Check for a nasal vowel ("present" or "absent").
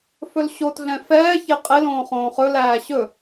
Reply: present